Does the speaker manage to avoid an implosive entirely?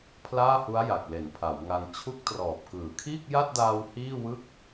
yes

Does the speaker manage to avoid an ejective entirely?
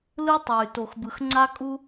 no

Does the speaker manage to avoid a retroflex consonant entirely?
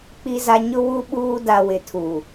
yes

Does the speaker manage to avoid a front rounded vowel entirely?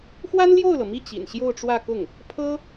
yes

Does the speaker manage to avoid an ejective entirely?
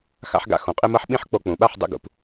no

